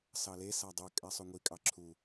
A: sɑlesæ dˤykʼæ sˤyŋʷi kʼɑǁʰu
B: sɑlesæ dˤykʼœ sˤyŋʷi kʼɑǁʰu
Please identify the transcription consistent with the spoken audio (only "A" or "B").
A